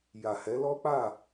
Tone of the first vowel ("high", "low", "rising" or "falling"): low